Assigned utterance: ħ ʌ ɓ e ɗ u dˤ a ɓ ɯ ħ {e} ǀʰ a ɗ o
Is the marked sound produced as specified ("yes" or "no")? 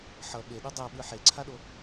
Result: yes